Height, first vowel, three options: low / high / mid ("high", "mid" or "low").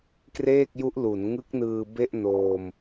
mid